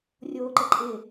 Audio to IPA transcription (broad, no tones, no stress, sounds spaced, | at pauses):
rʲ oː ǃ ə ǃʼ ɪ